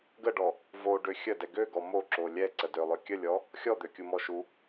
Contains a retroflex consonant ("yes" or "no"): yes